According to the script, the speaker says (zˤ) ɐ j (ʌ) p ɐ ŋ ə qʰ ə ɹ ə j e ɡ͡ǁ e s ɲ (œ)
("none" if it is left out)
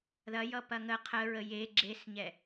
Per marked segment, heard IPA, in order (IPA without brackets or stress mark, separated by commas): ð, ʌ, ɛ